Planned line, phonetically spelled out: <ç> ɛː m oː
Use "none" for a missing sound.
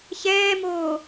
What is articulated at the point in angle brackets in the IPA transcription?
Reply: ç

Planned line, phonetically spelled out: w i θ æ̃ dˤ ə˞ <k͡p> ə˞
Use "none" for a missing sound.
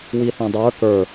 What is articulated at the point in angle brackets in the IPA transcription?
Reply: k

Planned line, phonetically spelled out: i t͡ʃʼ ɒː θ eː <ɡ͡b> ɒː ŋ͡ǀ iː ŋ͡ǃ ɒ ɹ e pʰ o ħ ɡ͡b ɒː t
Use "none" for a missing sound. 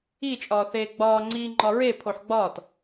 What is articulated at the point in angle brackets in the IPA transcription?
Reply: ɡ͡b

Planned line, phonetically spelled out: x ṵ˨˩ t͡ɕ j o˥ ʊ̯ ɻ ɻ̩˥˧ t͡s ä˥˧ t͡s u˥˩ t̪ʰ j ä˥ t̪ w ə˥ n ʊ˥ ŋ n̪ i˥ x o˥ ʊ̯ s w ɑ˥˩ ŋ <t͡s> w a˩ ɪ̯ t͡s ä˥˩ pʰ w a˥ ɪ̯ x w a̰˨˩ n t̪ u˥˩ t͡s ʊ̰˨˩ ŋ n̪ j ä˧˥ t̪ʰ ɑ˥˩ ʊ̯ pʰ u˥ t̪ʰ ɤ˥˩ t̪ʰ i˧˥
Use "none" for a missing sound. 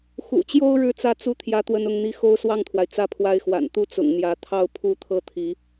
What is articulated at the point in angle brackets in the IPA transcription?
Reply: t̪ʰ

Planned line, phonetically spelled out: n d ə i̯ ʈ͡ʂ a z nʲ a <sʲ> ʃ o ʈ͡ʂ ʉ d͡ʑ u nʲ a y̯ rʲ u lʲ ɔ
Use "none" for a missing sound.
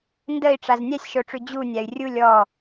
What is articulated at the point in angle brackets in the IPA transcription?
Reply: sʲ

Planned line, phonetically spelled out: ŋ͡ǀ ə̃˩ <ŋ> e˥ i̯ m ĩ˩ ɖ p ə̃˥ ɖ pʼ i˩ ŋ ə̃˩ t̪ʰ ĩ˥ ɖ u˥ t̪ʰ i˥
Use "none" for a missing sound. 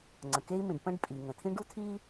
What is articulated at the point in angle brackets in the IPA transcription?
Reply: k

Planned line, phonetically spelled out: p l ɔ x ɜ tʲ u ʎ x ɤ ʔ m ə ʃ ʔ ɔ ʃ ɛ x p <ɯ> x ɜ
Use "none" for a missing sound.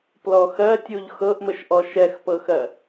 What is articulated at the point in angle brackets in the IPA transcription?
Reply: ɤ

